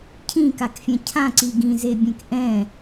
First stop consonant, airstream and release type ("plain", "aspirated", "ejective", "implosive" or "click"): aspirated